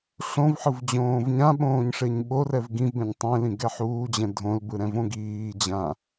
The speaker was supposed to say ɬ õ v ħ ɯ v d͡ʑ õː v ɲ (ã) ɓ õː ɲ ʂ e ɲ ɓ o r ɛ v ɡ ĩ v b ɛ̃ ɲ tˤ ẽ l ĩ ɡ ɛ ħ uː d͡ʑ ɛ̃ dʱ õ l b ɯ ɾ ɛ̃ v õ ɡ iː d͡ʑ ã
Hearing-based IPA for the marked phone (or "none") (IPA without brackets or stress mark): ã